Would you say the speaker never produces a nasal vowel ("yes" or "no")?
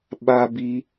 yes